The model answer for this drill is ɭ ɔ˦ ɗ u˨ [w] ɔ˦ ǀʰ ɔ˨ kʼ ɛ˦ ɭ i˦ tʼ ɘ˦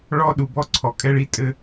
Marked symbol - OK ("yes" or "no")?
no